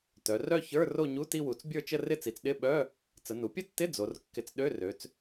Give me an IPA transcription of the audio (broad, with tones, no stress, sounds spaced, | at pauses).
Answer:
t œ˩˧ r œ˥˧ ç ə˞˧˥˧ r o˥˧ ɲ u˧˥˧ t i˥˧ w u˩˧ t͡s bʲ ə˞˥˧ t͡ʃ ə˥˧ r ɪ˥˧ t͡s i˩˧ t͡s ɗ ɪ˧˥˧ ɓ œ˧˥˧ | t͡s ə˩˧ n u˩˧ pʲ ə˥˧ tː ɪ˧˥˧ d͡z o˩˧ r kː ɪ˨˥ t͡s ɗ ø˧˥˧ r ø˩˧ t͡s